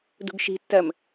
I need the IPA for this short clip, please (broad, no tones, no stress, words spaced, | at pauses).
dṳɡʃi̤tːɜm